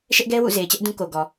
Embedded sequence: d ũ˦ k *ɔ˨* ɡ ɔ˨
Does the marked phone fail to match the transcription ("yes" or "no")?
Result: yes